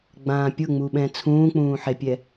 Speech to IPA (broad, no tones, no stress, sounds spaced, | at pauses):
ɡ͡b ãː pʲ ʊ ŋ͡m u ɓ ɛ̃ t͡sʰ ũː k͡p ũː ħ e pʲ ɛ